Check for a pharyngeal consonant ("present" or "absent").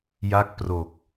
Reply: absent